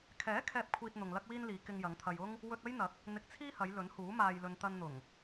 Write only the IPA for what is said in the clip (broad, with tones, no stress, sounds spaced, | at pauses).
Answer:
kʰ ɛː˨˥ kʰ ɛː˨ p̚ kʷʰ iː˨ t̚ n̪ ʊ˨ ŋ l ɐ˥ k̚ w iː˥ n l iː˨˧ k ɪ˧ ŋ j ɐ˨˧ ŋ t̪ʰ ɐ˧ j ʊ˥ ŋ | w ɵ˧ t̚ ɐ˥ j n̪ ɐ˨˥ k̚ | n̪ ɪ˧ k̚ t͡sʰ iː˥ h ɐ˨˧ j l ɵ˨˥ n h uː˨˥ m aː˧ j l ɵ˧ n t̪ ɐ˧ n n̪ ʊ˨˩ ŋ